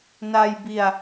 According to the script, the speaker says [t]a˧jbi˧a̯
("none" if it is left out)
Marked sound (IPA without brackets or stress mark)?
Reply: n